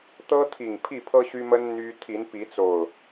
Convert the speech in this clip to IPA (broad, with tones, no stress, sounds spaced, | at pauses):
t̪ ɤ˦ t̪ʰ i˨˩ ŋ pʰ i˥˨ pʰ ɤ˦ ɕ y˦ m ə˦ n n̪ y˦ t̪ʰ i˨˦ n p i˨˦ t͡s o˨˩ ʊ̯